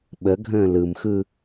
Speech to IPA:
ɓəɡʱə̃ː lɯmxɯ

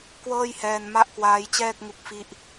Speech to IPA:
kwɤː˥˩j hɛː˧n ma˥˩ʔkwaː˦˥jt͡ɕɛː˥˩k̚ ŋu˦˥k̚fi˥˩ʔ

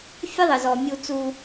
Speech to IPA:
fʲɘ˥ðˤɘ˧zɔ˧ mʲu˧t͡su˧

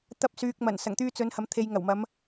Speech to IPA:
t̪ɐ˧p̚syː˨k̚ mɐ˨˩nsɐ˨˩ŋt̪yː˧ t͡sɵ˨˧nhɐ˨mt̪ʰe˨j ŋɐ˨˩wmɐ˨˧m

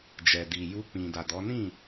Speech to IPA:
d͡ʒɛ˨ di˨ ju˧k͡pĩ˨ da˨dɔ˨˦ nĩ˦˨

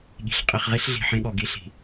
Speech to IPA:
ɠi̤˨ɬ qʼi˨χʁi˦ɬ ɮi̤˨ħẽ˦ɠɔ˨ ɡi˦ɬi̤˨

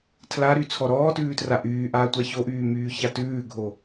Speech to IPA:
tʰlaɾy t͡sʰɔɾɔːtʉːtra ʔyːʔaːtʷa çoʔyː myːçatʉːɡʱo

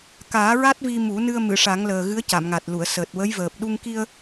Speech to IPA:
kaː˨˩˦ɹa˦˥t̚ vi˧mu˨˩˦nɨ˧ə̯ mɨ˨˩˨ʂa˨˩˦ŋləː˨˩ ɣɨ˧˥ə̯ca˨˩˨mŋa˨˩t̚lu˨˩˨ə̯ səː˨˩t̚wə˧˥jvəː˨˩p̚ ɗu˧ŋki˧ə̯

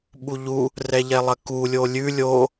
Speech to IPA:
ɓuʎu | rɛʎɛlˠɐku lʲolʲʉ lʲo

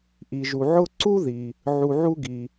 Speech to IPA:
ʔi˩ʒu˩ ʕʊ˦ǀu˥ði˩ | ʕu˨ʕu˦ɡi˩

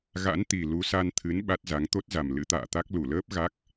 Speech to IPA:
ɣa̰˧˥nt̪i˨˩ lu˨˦sa˧nt̪ʰɨ˨˦n ɓa˦˥t̚za˨˦ŋ t̪o˦˥t̚za˨˩m lɨ̰˧˥t̪a̰ː˧˨t̪a˦˥k̚ lu˧˩ləː˦˥p̚ ɣa˦˥k̚

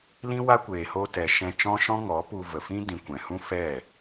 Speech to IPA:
lĩ˦wa˦kʷeː˨ ho˧tɛ˨ ʃɛ̃˧t͡ʃɔ̃˦ʃɔ̃˦ ŋɔ˨˦pu˧ və˨fĩ˦dĩ˨ kʷɛ̃˨hũ˦fɛ˦˨

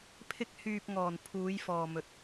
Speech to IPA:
pʰɪ˧k̚hyː˨p̚ŋɔː˨˩n pʰuː˨˧jfɔː˨mɵ˨˥t̚

